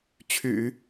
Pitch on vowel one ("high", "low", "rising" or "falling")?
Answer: low